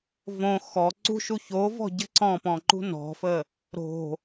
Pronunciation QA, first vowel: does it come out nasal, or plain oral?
nasal